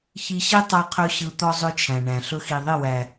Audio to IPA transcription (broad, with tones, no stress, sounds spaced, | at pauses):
ç i˧ ɕ i˦ tˤ a˧ qʰ ɵ˧ ɕ ɯ˧ t̪ ɔ˦ zˤ ɵ˦ t͡ʃʰ æ̃˨ ɳ æ̃˨ ɬ ɵ˧ x i˨ ðˤ i˦˨ w æ˨